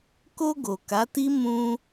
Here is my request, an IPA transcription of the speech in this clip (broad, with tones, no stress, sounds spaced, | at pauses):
k o˧ ɡ o˨ k a˨˦ t i˦ m ũ˧